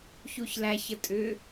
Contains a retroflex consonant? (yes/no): no